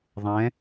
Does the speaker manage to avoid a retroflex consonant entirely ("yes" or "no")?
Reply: yes